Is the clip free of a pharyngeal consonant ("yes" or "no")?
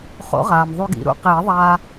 yes